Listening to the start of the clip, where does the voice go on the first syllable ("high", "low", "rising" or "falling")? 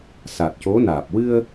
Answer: low